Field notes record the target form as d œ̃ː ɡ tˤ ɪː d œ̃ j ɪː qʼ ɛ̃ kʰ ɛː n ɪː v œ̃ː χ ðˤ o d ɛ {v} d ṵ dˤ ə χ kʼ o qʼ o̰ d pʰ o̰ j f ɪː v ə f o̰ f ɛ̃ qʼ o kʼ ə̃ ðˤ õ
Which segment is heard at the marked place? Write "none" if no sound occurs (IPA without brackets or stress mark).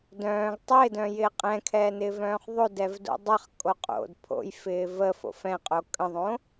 v